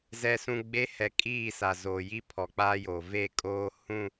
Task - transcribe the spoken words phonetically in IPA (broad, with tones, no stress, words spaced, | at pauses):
zɛ˨sũ˨ɡ͡be˨˦ hɛ˨kʼiː˦˨ sa˨zoː˨ji˦ pʰɔ˨k͡paː˦joː˨ ve˦˨ kʼoː˦hũ˦˨